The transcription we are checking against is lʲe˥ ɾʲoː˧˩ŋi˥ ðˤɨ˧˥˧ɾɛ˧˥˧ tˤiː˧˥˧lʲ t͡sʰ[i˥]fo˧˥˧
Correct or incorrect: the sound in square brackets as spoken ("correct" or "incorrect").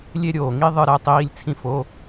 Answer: incorrect